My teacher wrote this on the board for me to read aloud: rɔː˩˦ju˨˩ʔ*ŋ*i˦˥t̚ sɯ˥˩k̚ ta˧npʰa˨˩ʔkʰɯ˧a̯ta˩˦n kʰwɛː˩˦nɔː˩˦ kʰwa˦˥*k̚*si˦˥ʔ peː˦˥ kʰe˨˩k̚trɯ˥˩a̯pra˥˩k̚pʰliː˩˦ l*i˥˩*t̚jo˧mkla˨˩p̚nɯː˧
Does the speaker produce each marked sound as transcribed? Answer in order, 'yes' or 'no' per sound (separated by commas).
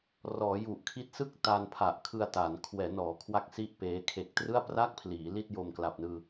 no, yes, yes